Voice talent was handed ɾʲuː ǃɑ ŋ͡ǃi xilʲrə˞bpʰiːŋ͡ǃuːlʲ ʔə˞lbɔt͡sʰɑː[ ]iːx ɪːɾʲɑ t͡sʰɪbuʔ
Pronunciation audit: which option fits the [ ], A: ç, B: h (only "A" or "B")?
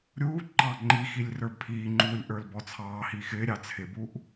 B